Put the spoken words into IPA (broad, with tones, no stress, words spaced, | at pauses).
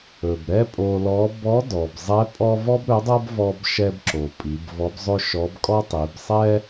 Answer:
ɵ˩b ɾɛ˥pʼo˧lɔ˧˥ bɔ˧˥dɔ˩bzˤɛ˧˥ pʼɔ˥ vɔ˥bɾɵ˧˥dˤɤ˥b vɔ˧bʃɛ˧b ǁo˩ pʼi˩˧bvɔ˧˥bzˤɵ˥ʃɔ˧˥b kʼɔ˥tˤi˩˧b sˤɛ˥